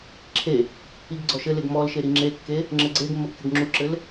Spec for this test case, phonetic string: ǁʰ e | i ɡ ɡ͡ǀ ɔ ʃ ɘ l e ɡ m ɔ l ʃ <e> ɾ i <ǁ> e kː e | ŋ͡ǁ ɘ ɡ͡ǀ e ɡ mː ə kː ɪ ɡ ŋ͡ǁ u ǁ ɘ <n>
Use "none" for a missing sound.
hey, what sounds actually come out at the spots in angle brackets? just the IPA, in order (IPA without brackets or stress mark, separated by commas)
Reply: e, ŋ͡ǁ, l